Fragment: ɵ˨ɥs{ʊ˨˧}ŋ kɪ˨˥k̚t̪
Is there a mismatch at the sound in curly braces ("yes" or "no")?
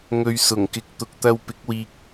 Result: yes